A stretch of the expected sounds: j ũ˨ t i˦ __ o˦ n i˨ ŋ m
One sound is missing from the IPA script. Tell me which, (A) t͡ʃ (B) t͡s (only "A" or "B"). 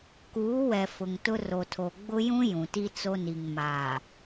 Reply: B